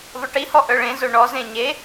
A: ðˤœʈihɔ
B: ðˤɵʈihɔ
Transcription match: B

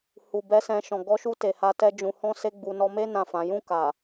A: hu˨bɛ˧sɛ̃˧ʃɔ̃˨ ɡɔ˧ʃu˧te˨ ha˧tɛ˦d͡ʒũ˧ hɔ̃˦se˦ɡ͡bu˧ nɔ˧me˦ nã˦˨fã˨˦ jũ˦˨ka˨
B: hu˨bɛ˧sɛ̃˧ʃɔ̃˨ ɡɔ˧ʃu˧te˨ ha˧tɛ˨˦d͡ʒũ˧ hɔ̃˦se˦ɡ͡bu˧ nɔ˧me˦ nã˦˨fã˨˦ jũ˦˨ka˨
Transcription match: A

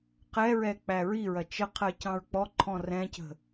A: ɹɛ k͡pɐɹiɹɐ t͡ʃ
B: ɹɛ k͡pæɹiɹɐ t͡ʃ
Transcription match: B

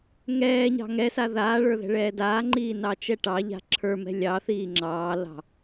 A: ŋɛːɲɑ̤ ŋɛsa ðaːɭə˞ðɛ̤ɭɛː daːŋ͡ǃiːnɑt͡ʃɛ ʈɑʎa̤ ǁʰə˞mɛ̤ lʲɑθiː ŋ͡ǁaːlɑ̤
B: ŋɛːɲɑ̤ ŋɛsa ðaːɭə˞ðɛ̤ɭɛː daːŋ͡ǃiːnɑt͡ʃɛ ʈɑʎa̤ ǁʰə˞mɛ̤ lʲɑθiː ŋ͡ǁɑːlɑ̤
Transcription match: B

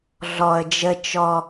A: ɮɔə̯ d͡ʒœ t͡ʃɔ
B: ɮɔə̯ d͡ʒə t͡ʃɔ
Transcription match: B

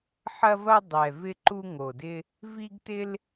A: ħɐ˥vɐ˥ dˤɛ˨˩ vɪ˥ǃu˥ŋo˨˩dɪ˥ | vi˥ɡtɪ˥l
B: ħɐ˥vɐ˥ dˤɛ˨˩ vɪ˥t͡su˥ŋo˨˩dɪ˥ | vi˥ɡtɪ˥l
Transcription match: A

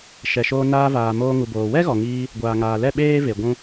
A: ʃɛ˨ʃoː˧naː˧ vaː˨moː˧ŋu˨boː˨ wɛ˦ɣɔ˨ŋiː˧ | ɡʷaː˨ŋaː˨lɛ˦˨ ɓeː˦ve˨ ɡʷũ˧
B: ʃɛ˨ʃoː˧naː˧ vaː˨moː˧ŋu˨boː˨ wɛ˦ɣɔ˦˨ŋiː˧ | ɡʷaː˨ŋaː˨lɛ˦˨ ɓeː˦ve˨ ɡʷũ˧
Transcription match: A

